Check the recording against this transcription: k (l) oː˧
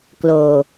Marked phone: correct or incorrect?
correct